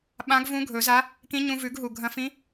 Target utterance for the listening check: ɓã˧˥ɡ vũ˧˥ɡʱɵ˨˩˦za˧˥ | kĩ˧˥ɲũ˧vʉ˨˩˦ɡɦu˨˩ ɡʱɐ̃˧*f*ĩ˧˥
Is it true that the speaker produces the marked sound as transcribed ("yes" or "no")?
yes